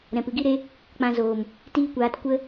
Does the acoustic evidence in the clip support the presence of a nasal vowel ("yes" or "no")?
yes